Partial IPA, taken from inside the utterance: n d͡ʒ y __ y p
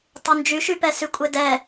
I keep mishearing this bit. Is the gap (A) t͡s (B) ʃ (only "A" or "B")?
B